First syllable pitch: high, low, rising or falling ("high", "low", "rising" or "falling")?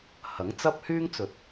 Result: rising